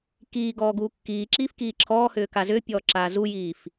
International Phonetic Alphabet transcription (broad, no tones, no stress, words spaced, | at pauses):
kiːɡɔː ɡuːkːiːǁiːf kiːǁʰɔːhʏː kazʏːpʲɔː ǁaːzujiːf